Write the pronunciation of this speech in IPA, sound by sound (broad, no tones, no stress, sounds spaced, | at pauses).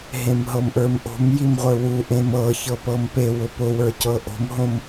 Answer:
ɦ ẽ m ɦ ɤ m ʔ ə˞ m ʔ o̤ m j i m ʁʷ ə˞ w u ʔ ẽ m ɤ ç ɤ p ɤ m p e w ʊ p ʊ w ə˞ c ɤ ʔ o̤ m ɦ õ m